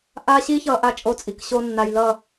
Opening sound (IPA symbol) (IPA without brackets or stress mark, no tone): ʔ